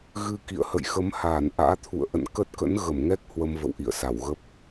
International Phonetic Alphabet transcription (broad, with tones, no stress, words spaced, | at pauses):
ɣɨ˧kḭ˧˨ə̯hə̰˧˨j xə˨˦mhaː˧˩n ʔa̰ː˧˥t̪ʰṵ˧˨ə̯ʔə̰˧˨n kə˦˥t̚kə̰˧˥n ɣə˧˩mŋɛ˦˥k̚ hwə˧mvə̰˧˨w ʔḭ˧˨ə̯sa˧˩w ɣə˦˥p̚